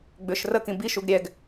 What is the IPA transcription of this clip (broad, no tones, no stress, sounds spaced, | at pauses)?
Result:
ɡ͡b ʏ ʃ r ə k ĩ b i ʃ u ɡ ɾʲ ɛ ɡ